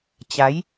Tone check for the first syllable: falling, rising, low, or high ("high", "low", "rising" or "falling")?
rising